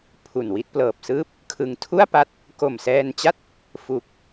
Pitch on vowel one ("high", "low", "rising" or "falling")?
low